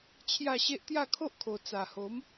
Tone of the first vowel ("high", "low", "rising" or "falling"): falling